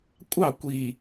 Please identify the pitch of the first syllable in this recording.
falling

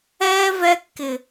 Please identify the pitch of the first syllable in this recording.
high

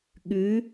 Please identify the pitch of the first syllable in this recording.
rising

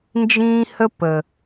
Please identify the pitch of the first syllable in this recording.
high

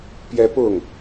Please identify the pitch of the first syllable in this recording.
high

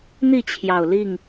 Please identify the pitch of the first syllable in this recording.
falling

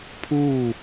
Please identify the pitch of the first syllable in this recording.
falling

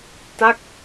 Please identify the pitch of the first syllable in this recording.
falling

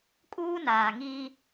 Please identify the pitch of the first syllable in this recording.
high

